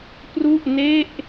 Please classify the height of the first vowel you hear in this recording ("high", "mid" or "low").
high